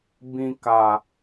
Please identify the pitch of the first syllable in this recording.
low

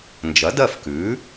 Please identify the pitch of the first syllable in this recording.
rising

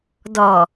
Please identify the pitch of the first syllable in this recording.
low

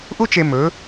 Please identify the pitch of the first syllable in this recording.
high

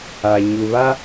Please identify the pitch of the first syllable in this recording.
low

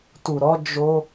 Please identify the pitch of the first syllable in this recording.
low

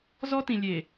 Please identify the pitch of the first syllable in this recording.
high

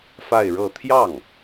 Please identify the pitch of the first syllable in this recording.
falling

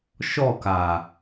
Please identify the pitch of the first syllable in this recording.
falling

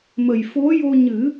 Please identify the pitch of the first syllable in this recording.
low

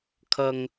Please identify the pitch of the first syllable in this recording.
low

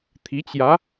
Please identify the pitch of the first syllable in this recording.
rising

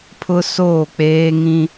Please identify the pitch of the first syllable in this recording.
high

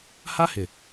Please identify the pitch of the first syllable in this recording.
high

